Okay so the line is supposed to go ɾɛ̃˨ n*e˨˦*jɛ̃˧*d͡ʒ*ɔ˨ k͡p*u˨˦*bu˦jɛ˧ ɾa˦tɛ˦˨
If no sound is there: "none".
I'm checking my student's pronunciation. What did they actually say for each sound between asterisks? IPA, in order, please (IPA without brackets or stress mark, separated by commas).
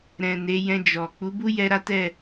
e˨˦, d͡ʒ, u˨˦